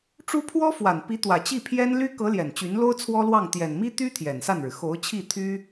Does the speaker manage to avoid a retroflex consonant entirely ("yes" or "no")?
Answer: no